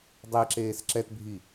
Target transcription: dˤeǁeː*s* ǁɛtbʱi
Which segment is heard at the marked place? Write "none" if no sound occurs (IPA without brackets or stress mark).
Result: s